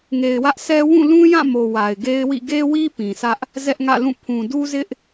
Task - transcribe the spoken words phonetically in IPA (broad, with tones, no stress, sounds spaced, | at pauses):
ŋ e˨ ɪ̯ w ä˦ ʔ sʰ ɛ˦ w ũ˦˨ l ũ˦ j ã˦˨ m o˨ w a˨ ɪ̯ ɡ e˦ ɪ̯ w ḭ˦˨ ɡ e˦ w i˦ p ĩ˨ s ä˦ ʔ | z ɛ˦ ʔ ŋ ä̰˦˨ l ũ˦˨ pʰ ũ˨ d u˦ z ɪ˦ ʔ